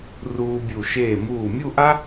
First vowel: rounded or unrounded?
rounded